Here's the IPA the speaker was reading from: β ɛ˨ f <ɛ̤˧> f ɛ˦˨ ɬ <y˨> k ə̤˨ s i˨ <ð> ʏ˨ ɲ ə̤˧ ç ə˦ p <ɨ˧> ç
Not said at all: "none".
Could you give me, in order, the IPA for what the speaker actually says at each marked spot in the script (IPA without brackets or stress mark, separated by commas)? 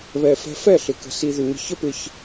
ɛ̤˧, ɪ˨, ð, ɪ˧